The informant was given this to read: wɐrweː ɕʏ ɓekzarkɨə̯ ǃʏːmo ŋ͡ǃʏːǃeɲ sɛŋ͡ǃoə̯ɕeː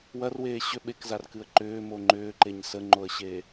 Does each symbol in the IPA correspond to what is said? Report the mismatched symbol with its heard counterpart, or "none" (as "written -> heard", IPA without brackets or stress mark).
ɛ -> ə